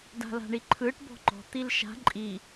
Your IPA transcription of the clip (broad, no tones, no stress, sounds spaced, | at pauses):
d a̤ l a̤ ɳ i ǃʰ ɯ ʈ b ɔ̤ ŋ͡ǃ ɔ̤ t̪ i l ʃ a̤ ǃʼ i